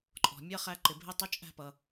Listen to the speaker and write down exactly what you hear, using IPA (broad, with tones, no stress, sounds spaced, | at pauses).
ǃʼ ɔ̤˩ mʲ ʌ˧˥˧ χ æ˧ ǃ ɪ˩ bʱ ɪ˧˥˧ tˤ ʊ˧˥˧ t͡ʃʼ æ̤˧ p ʌ˩